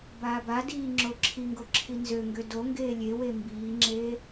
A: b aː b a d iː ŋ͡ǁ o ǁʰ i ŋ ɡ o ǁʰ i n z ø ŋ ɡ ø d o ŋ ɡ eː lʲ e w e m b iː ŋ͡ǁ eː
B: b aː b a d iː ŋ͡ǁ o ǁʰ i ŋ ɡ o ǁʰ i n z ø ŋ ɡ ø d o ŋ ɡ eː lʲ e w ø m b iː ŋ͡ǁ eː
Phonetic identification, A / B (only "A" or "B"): A